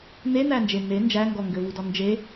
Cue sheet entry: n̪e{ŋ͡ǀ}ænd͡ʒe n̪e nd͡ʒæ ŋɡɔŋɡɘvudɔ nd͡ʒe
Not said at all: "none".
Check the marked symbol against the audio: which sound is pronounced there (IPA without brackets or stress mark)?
n̪